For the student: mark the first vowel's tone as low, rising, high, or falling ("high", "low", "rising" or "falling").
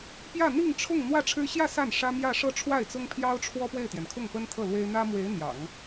falling